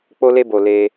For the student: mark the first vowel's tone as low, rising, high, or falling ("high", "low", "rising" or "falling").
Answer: high